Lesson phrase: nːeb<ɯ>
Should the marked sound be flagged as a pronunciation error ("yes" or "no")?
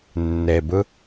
no